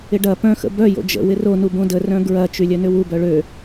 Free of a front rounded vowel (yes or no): no